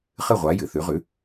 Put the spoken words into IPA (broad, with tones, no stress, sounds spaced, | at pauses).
χ ɨ˥˩ ʁʷ a˩˥ j ɨ˩ θ ʉ˩˥ ʁ ʉ˩˥